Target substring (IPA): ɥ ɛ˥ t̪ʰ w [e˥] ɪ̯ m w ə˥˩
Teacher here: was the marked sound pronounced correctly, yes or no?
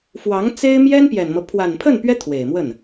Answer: no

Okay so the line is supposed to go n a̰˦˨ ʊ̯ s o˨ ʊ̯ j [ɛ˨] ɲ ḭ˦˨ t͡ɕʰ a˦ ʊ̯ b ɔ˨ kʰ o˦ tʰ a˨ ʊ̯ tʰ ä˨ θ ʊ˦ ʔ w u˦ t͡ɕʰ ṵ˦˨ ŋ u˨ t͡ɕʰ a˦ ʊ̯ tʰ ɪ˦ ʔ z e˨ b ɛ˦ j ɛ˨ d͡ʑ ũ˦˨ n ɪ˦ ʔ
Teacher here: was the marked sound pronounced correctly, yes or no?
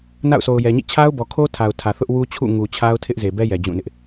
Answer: yes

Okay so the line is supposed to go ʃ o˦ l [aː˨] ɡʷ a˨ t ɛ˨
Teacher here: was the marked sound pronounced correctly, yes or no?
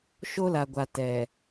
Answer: no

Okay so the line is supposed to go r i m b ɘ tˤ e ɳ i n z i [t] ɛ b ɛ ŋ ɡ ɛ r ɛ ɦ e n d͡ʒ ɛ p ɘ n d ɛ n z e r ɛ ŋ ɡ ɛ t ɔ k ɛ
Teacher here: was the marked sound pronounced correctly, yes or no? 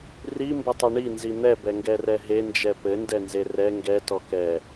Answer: no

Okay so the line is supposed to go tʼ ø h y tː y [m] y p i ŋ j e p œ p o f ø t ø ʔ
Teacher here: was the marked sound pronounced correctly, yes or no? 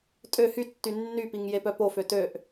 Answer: no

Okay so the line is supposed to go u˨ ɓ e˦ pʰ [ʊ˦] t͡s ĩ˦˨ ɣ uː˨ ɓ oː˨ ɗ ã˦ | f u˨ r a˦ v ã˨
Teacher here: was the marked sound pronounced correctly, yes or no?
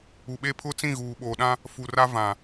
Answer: yes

